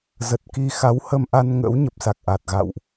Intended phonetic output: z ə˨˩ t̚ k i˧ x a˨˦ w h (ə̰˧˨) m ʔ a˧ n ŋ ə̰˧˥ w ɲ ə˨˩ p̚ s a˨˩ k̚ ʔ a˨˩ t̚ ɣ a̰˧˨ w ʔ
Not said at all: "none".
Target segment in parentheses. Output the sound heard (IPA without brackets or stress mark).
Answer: ə˧